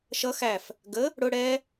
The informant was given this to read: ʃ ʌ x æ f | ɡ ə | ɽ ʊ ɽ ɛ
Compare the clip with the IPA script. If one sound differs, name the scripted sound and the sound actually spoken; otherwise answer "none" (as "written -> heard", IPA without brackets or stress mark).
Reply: none